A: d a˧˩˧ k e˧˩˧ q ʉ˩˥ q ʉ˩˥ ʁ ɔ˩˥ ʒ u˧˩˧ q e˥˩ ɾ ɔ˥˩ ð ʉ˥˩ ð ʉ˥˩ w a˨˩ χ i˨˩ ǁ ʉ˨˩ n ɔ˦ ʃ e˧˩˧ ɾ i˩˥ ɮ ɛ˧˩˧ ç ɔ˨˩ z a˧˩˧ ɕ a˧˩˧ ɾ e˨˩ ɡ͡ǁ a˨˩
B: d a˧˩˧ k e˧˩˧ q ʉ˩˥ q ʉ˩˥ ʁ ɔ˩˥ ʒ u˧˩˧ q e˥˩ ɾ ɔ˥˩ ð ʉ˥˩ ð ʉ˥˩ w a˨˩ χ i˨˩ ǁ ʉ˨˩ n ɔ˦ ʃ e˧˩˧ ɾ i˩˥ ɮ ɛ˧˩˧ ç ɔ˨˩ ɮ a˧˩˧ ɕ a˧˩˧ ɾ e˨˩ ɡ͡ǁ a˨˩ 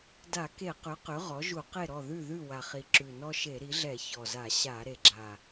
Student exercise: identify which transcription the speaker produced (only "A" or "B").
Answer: A